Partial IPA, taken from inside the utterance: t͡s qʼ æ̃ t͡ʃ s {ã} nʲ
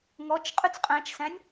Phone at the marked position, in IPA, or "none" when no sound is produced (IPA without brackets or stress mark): æ̃